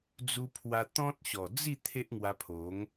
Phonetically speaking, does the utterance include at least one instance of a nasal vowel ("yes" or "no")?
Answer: yes